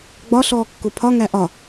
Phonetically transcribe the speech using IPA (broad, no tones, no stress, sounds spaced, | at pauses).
ɡ͡b ɒ ɬ ɔː kː ʊ pʰ ɒ ŋ æ ʔ ɒ